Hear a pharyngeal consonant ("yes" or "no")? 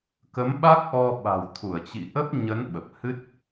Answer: no